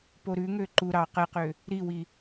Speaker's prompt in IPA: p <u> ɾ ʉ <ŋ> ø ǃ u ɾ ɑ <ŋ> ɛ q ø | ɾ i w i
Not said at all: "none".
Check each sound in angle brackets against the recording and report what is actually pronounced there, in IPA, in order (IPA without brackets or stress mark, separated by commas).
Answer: o, ŋ, q